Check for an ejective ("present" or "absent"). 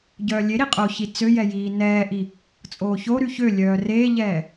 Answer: present